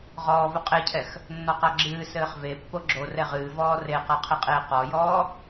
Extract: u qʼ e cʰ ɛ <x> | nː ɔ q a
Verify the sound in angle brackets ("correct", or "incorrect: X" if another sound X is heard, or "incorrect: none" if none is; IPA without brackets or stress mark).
correct